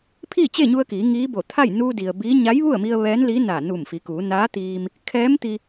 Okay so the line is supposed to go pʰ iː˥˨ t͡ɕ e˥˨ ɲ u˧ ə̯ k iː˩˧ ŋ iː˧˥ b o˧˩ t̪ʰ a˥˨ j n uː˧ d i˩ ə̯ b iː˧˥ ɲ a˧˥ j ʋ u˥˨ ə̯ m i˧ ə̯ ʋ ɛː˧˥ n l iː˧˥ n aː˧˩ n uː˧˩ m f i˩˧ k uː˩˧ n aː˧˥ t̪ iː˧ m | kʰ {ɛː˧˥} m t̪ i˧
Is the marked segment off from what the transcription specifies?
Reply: no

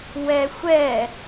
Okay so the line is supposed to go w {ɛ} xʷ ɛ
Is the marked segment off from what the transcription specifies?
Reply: no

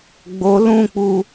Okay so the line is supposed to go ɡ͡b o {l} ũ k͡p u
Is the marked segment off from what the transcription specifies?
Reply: no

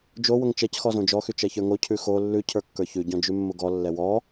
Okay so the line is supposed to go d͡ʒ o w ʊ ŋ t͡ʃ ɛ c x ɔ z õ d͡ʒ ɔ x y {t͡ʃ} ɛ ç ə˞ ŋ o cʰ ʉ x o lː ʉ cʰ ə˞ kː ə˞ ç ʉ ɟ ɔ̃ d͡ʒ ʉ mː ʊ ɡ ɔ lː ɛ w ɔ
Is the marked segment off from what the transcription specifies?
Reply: no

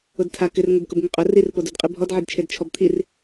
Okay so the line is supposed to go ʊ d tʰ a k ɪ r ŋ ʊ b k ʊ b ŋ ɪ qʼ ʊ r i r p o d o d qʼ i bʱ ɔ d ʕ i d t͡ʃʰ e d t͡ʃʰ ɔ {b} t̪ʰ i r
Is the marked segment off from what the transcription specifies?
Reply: no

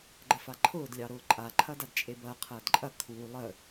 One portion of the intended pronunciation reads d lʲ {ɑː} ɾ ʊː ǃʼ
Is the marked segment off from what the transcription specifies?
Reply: yes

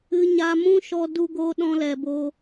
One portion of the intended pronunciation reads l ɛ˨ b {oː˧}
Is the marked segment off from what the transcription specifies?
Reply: no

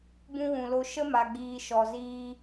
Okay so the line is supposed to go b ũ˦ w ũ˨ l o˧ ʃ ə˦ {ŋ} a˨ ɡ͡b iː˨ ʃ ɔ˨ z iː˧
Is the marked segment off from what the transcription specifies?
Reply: yes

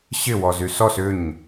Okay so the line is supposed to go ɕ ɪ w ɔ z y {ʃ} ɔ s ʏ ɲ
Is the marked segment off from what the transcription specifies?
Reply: yes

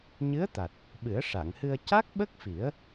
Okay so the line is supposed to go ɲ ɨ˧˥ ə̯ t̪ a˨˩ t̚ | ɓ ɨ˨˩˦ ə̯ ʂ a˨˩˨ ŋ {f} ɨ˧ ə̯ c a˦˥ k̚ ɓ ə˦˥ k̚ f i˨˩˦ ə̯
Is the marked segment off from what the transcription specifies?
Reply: yes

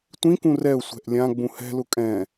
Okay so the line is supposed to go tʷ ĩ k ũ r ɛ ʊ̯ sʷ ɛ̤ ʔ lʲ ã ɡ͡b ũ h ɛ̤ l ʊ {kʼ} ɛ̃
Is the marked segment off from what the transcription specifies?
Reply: no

